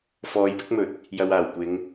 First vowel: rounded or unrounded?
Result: rounded